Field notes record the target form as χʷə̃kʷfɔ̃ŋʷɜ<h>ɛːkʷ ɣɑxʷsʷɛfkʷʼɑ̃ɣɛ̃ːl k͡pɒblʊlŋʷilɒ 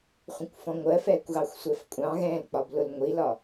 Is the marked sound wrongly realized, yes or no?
yes